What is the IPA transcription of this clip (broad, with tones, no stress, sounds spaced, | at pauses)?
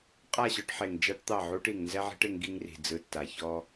qʼ a˦˨ ɕ ɔ˦ ʈ ħ e˨ ŋ d͡ʒ a˦ ʈ t̪ ɑ˦˨ ʕ u˦ ʈ i˨ ŋ n z ɛ˦ ʕ i̤˦ ʈ e˦ ŋ ɡ i˦ ŋ r i̤˨ d͡z ɯ˨ tː a˨ ç ɔ˦